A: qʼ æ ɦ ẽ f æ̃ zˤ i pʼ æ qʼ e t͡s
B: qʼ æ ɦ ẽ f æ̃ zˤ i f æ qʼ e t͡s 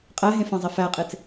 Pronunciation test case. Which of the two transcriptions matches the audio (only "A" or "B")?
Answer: B